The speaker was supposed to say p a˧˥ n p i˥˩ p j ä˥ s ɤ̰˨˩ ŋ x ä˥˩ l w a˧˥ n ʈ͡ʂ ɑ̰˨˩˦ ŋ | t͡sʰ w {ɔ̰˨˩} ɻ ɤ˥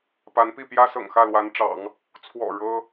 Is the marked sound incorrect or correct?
correct